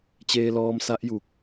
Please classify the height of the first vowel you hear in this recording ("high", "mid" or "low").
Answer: mid